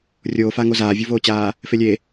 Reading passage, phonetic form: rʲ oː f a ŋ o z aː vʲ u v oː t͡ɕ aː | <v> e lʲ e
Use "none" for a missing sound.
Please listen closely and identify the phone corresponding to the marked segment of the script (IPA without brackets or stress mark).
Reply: f